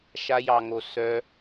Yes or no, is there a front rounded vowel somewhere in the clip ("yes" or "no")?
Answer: yes